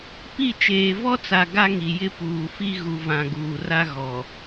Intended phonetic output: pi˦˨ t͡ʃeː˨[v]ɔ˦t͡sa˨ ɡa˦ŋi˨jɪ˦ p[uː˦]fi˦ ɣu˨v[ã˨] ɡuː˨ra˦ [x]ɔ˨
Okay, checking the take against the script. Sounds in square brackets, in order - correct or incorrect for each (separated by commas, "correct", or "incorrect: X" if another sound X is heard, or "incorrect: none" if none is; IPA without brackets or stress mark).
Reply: correct, incorrect: uː˨, correct, incorrect: ɣ